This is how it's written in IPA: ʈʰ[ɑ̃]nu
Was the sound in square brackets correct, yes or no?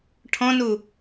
no